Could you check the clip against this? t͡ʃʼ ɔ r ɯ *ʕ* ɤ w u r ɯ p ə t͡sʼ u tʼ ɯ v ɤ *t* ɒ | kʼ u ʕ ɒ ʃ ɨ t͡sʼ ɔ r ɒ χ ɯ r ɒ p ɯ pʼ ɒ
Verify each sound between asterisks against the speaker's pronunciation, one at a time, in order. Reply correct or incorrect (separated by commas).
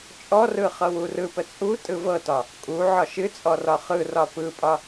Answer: incorrect, correct